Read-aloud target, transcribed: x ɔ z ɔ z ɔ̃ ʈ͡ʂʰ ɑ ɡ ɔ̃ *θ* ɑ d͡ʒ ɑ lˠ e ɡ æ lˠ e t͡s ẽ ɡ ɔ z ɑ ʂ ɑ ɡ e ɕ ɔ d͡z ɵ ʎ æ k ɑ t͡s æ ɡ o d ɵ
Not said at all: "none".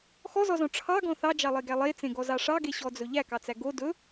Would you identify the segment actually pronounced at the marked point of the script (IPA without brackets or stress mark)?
θ